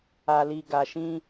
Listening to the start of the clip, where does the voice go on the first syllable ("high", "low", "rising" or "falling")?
low